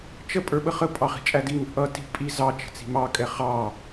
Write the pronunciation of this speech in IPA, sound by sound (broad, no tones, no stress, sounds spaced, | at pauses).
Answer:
t͡ʃ ə pʼ ə˞ ɓ ə χ ə pʼ ɑ χ i̤ t͡ʃʼ æ d i ŋ ə̤ ʔ ʌ t i̤ pʼ i z ɑ t͡ʃ ə̤ t͡s i̤ m ɑ kʼ ɛ χ ɑ